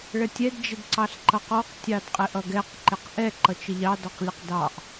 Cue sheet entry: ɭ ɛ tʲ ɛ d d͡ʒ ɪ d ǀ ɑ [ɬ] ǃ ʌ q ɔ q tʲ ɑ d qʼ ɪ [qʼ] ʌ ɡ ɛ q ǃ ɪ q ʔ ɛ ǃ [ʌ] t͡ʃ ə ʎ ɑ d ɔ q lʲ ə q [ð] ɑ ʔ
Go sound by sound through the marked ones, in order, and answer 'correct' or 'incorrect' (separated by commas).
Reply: correct, incorrect, correct, incorrect